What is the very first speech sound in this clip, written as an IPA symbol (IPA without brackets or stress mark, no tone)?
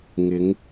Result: ŋ